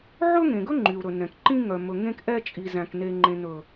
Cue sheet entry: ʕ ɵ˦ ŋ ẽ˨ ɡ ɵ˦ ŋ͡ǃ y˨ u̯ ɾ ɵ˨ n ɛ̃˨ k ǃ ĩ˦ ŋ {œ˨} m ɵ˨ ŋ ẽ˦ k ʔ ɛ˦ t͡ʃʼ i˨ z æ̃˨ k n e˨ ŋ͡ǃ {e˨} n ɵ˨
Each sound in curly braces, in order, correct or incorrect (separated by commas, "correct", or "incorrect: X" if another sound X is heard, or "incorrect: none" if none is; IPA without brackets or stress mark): correct, incorrect: ẽ˨